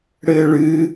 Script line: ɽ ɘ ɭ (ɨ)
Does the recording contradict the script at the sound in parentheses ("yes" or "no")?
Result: no